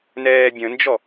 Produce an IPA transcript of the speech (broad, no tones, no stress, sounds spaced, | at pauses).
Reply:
n ɛː bʲ ə̃ n d͡ʒ ɔ